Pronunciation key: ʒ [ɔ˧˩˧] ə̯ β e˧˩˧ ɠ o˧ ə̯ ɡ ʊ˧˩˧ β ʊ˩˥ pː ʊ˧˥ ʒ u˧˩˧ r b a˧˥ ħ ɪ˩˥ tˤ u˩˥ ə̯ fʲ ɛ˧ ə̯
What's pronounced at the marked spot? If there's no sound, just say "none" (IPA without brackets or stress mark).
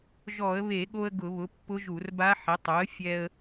ɔ˧˩˧